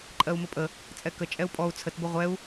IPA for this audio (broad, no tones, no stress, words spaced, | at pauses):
ǃʼɜu̯məpʼə | t͡sʼɛkə t͡ʃʼɛu̯pʼɔu̯ t͡sʰət bəʁʷɛu̯